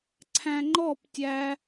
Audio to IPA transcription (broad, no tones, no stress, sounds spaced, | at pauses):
ǀʰ æ̃ ŋ͡ǃ ɔ p tʲ æ